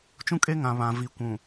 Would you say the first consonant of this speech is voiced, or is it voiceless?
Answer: voiceless